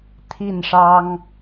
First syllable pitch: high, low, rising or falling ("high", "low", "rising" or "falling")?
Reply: falling